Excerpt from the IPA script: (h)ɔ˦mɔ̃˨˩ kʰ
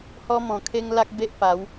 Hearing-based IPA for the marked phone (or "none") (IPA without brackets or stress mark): h